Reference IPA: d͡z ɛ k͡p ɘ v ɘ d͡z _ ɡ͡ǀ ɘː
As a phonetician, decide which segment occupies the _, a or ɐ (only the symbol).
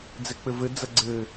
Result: ɐ